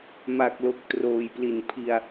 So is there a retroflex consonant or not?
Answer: no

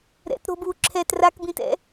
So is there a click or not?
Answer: yes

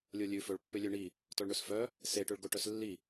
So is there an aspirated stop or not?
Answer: no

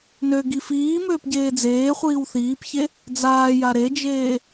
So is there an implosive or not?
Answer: no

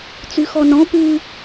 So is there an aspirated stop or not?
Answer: no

